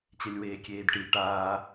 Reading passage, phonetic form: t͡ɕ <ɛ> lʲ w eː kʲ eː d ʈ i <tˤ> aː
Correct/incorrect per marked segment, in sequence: correct, incorrect: ʈ

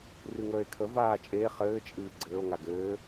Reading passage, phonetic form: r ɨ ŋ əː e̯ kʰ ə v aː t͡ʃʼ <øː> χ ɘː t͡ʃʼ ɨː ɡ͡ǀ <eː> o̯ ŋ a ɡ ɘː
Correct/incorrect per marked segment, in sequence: incorrect: eː, incorrect: ɘː

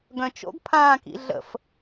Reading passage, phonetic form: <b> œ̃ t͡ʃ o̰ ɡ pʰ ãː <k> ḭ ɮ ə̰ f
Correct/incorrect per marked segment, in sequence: incorrect: ɡ, correct

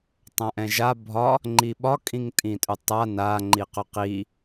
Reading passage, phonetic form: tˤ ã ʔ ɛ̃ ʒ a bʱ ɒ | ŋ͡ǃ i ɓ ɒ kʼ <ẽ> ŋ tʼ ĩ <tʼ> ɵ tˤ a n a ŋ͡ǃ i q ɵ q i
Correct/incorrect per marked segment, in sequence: incorrect: ĩ, correct

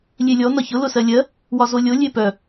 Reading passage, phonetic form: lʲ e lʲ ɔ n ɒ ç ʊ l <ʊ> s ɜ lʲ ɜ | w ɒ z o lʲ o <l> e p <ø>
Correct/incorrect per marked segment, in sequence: correct, incorrect: lʲ, incorrect: œ

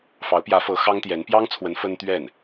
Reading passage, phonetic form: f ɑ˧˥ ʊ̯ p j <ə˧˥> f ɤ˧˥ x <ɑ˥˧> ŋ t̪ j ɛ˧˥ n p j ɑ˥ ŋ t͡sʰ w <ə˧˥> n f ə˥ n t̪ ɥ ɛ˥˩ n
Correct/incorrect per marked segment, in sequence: incorrect: ä˧˥, incorrect: ɑ˥, correct

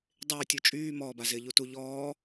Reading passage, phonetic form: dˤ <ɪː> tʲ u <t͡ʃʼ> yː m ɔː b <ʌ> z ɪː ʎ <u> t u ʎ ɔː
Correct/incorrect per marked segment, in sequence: correct, correct, incorrect: a, correct

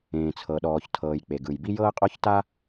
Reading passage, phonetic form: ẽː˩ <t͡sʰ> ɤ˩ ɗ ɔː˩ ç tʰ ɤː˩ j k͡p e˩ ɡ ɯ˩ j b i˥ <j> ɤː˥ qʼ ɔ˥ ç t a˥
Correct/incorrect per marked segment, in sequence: correct, correct

